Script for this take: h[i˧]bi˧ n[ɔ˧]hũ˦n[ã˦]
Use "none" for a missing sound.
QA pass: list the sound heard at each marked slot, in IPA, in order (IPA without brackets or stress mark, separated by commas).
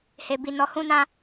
e˧, ɔ˧, ã˦